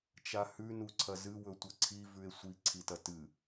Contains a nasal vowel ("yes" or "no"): no